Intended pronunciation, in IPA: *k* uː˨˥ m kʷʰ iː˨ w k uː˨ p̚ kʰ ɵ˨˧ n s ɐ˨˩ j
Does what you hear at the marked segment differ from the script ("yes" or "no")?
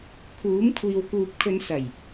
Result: yes